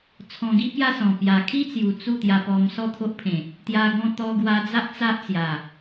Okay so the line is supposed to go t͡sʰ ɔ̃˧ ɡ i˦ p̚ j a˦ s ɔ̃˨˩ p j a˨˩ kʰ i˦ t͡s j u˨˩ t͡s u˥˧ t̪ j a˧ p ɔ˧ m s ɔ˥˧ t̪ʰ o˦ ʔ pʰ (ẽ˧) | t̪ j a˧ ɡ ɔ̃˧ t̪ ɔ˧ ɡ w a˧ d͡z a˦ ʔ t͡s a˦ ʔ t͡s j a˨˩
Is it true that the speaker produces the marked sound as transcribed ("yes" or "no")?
no